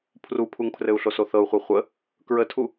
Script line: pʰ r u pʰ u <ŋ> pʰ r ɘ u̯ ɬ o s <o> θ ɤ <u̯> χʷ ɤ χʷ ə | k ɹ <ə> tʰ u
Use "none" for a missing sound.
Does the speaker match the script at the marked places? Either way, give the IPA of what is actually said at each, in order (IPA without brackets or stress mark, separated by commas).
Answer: ŋ, o, u̯, ə